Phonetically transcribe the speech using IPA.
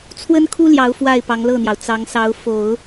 t͡sʰwə˥nkʰu˥ljɑ˧˥ʊ̯ fwa˥˩ɪ̯pɑ˧˥ŋlɤ˥˩n̪jɑ˩ʊ̯ t͡sɑ˧˥ŋ sɑ˧˥ʊ̯fo˨˩˦ʊ̯

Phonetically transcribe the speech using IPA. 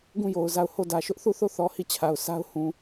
ɡũ˦˨jo˨ʊ̯ za˦˨ʊ̯ ho˦˨dä˨ʃʊ˦ʔ θu˦˨θo˦˨θɔ˨ hi˦˨t͡ɕʰa˨ʊ̯ sʰa˦ʊ̯hũ˨

